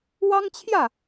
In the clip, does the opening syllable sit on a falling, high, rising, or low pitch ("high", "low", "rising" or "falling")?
high